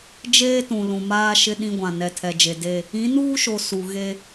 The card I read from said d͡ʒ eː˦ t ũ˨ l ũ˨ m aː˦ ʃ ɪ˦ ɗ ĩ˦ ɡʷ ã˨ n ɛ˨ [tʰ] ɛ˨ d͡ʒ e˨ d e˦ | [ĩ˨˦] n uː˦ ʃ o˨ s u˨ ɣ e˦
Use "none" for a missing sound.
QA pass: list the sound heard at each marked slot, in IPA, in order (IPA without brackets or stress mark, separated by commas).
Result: tʰ, ĩ˨˦